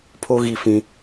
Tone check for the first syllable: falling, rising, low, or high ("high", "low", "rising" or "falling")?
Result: high